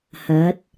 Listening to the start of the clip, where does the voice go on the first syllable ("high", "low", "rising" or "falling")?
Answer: rising